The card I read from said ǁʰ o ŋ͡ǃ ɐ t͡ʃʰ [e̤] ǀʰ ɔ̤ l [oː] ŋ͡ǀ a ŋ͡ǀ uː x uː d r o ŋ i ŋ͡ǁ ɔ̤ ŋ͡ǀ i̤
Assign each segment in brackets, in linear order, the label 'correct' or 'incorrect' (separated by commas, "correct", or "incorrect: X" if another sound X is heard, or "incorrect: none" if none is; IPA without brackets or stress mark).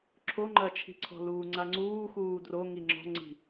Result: incorrect: i̤, incorrect: uː